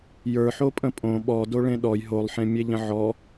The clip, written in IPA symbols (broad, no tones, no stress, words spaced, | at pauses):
jə˞ ħopʼə̃pʼõ ɓɔdoɭẽ ɗɔj ɦolˠħẽmʲe ʎə̃ʕɔ